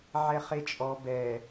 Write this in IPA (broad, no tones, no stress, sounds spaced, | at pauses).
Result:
ʕ ɛ χ e t͡ʃʼ ɔ b ɛ